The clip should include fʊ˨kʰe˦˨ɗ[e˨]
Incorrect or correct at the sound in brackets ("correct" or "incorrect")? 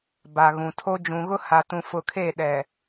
incorrect